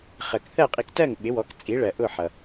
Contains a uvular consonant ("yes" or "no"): yes